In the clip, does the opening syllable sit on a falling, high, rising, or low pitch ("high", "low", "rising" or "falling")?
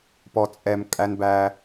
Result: low